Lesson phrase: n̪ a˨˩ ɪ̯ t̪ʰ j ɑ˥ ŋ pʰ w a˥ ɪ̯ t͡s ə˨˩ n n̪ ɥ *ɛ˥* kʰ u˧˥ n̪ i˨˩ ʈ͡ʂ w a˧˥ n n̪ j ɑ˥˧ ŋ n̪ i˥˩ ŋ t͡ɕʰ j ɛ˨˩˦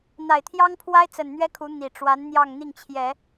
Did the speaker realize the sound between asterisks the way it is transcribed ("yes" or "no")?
yes